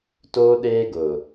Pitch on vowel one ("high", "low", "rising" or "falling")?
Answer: high